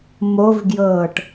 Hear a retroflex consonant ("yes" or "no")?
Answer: yes